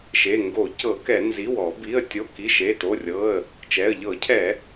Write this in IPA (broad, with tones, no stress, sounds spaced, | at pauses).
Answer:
ʃ e˩˧˩ ŋ ɡ o˧˩˧ c ɤ˧˩˧ k ɛ˧˩˧ n z i˩˧˩ w ɔ˧˩˧ b i˩˧˩ ə̯ tʲ o˩˧˩ k i˩˧˩ ʃ e˩˧˩ t o˩˧˩ rʲ ɤ˩˧˩ ə̯ | t͡ʃ ɛ˩˧˩ ə̯ ʎ ɤ˧˩˧ cʰ ɛ˧˩˧